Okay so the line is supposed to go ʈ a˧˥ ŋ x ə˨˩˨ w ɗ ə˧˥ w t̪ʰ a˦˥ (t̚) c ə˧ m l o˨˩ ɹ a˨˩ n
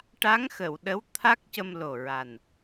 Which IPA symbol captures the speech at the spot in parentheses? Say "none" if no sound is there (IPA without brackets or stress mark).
k̚